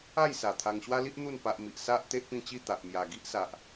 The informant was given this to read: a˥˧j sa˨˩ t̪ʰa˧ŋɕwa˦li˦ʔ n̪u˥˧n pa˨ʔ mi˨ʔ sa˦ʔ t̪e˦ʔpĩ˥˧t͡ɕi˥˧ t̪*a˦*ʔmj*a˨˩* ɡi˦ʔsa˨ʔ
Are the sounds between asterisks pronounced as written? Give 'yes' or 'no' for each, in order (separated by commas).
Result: no, yes